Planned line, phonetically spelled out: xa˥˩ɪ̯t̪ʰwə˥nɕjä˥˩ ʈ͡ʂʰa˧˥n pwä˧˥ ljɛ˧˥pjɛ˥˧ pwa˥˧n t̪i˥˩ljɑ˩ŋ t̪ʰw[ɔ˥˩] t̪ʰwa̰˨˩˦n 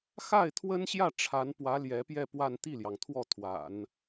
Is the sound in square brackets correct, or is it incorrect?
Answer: correct